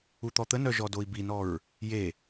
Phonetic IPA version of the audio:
u t̪ ɔ t̪ ə n œ ʒ ɔ d o i̯ b i n ɔ ɹ | j e

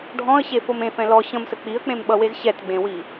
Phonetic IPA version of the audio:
ɖʱ ɔ̃ ə̯ ɕ e f o m ẽ f ɛ̃ l ɔ ɕ ə̃ m s ə k͡p i ə̯ k͡p ẽ m ɓ ʌ w e z ɕ ɛ t ɡ͡b ẽ w i

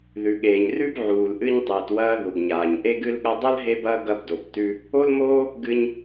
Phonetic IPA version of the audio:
ð ʉ˩ ɠ eː˩ ɲ r ʉ˥ b ʕ uː˩ l ʔ ɨ˧ ɲ tˤ ɨː˩ t w ɐː˧ ð u˩ ɡ ɲ aː˩ ɲ ʔ e˧ ɡ ɨ˧ l ɠ ɐ˧ dˤ ɐ˥ l ɦ e˥ b ɐː˥ ɡ ɐ˧ b d o˩ b t ʉ˧ | o˥ l m oː˥ | ɡ ɨ˧ ɲ

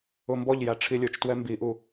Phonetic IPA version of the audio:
ʊ m b ɔ ʎ j æ ʈ͡ʂʰ i lʲ ʊ t͡ʃ t w ɛ m b i ʔ u

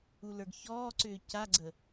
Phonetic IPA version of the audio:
u l ə˞ ɡ ç ɔː ǀ ʏː c a ɡ͡ǀ ə

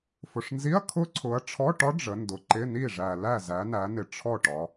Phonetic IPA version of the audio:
f ʊ˨ ʂ n z i˧˥˧ ɐ̯ kʰ ʊ˦˥ ǀʰ ʊ˨˦ ɐ̯ ʈ͡ʂʰ ɔ˧˥˧ ʈ ɒ˦˥ ɖ͡ʐ ə˨˦ n d ʊ˨ ǃ ɪ˧˥˧ n i˥˨ ʐ æ˨ l æ˥˨ z æ˨˦ n æ˨˦ n ɪ˨ ʈ͡ʂʰ ɔ˥˨ ʈ ɒ˨˦

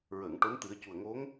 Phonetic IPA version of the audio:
ɹ əː˨˩˨ ŋ ʈ o˧˥ n t̪ ɨ˨˩˦ ə̯ c u˨˩ ə̯ ŋ o˧˥ ŋ

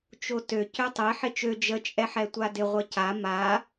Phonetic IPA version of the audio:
t͡ʃ o t ø c ø tˤ e ħ ɪ t͡ʃ ø d͡ʒ ə t͡ʃʼ ɛ ħ ɛ tʷ a d ɪ ʁʷ ə c a m a

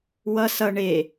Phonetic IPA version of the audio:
w ʌ s ʌ ɳ e

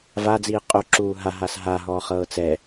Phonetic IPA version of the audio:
v a d͡z iː qʼ o ǁ uː ɦ a ɦ a s ɦ a ɦ ɔː χ ɤː t͡s ɛ

